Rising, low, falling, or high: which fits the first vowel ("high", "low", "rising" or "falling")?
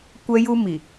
high